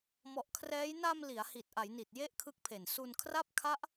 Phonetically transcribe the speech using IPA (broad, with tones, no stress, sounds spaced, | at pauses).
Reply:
m ɔ˨˩ ʔ kʰ r ɛː˦˥ j n a˧ m l i˩˦ a̯ h i˨˩ t̚ ʔ a˩˦ j n i˨˩ t̚ j e˥˩ ʔ kʰ ɯ˦˥ k̚ pʰ e˨˩ n s u˧ n kʰ r a˥˩ p̚ kʰ a˦˥ ʔ